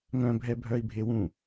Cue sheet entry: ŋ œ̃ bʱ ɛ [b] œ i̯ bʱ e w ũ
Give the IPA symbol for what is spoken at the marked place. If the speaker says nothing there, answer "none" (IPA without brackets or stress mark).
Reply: bʱ